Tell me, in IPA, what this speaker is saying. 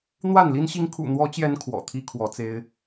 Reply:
n̪ w a˥˨ n l i˦ n ɕ i˦ ŋ kʰ ṵ˨˩ n̪ w ɔ˨˦ t͡ɕ j ɛ˨˦ n kʰ w ɔ̰˨˩ t̪ʰ i˦ kʰ w ɔ˨˦ t͡s e˦ ɪ̯

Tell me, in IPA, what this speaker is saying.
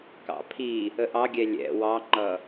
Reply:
k ɑ̰ pʰ i | ə ʔ ɑ ɡʲ ɛ lʲ ɛ̰ w ɑ ŋ͡ǃ ʌ

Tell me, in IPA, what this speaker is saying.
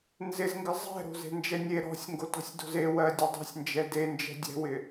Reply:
n z ɪ z ŋ ɡ ɪ zˤ ɛ̤ ɾ o̤ z e̤ n d͡ʒ ɛ nʲ e ɾ ɔ̤ sʲ ŋ ɡ o t ɔ̤ sʲ d o̤ z e w ɜ dʲ ɛ dˤ e̤ sʲ n d͡ʒ ɛ d e n d͡ʒ ɛ̤ dʲ ɛ̤ w ɪ

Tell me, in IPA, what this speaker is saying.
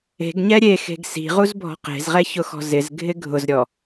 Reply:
e̤ ɡ ɲ ɛ ɾʲ e x e̤ ɡ s i̤ ʁ u z bʱ ɔ̤ q e̤ z ʁ ɛ ç ʊ x ɔ̤ z ɪ z ɡʱ ɪ ɡʱ ʊ z ɾʲ ɔ

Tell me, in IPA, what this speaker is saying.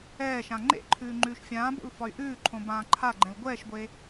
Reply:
ɛː ʃ ã ŋ͡ǃ ḛ ǃʰ ʉː ŋ͡ǃ ʉː ʃ fʲ ãː b o̰ l f ɒ y̯ ʔ ʉː ǃʰ õ b ãː ǃʰ a ɡ͡ǃ ɛ̃ l ɡʷ ɛː ʃ ɡʷ e

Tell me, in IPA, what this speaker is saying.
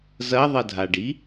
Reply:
z ɐ ðˤ ɐ dʱ a ɖ i

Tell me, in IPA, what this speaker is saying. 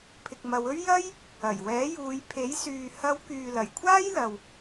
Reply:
pʰ ɪ˨ k̚ m ɐ˨˧ w ɵ˥ ɥ j ɐ˥ j | ɐ˨˩ j w ɛː˨˥ j uː˨˧ j pʰ e˨˥ j s yː˨ h ɐ˨˧ w k yː˨ l ɐ˨˩ j kʷʰ aː˥ j l ɐ˨ w

